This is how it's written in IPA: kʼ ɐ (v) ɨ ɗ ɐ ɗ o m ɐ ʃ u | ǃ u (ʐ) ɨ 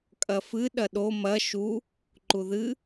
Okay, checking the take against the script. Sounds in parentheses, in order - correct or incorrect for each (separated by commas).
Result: incorrect, incorrect